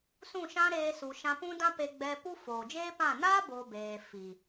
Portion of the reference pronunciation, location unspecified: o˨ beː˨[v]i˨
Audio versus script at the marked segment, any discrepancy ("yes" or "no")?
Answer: yes